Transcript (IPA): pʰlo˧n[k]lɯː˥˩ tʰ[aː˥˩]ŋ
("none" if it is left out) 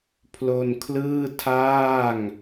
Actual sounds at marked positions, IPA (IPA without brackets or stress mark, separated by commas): kʰ, aː˥˩